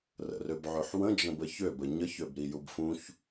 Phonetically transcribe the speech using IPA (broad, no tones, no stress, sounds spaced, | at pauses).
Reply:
r ə̰ r ø b ʕ ø ħ w ə̃ d͡ʒ ə̃ b ə ç ø b ə ɲ ə ç ø b ɾ i j u b f ũ ç